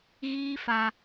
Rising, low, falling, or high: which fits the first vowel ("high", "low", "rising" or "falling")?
high